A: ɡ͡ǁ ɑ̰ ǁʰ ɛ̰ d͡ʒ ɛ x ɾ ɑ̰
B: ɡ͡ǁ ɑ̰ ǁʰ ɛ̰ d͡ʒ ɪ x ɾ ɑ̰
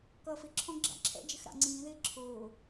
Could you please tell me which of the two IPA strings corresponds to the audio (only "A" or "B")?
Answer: B